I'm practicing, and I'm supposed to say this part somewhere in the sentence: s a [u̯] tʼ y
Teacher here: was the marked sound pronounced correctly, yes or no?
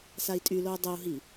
no